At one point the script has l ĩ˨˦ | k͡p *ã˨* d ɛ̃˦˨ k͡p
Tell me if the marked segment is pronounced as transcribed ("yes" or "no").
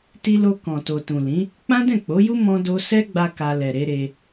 no